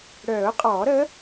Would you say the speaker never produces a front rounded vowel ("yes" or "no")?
no